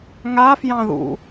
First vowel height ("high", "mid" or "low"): low